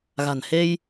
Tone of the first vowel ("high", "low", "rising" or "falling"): low